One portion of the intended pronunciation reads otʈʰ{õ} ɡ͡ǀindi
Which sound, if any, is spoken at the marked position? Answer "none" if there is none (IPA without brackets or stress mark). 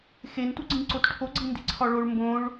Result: o